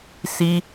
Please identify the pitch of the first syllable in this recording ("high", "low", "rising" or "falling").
high